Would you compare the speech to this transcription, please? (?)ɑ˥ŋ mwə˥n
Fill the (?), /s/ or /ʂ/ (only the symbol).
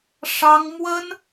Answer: ʂ